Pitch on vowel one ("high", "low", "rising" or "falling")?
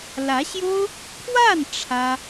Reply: rising